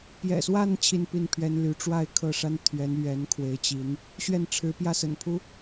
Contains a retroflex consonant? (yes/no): yes